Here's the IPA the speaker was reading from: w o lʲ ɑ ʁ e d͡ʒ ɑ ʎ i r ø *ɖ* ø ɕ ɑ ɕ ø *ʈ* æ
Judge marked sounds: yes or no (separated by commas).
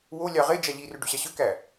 yes, no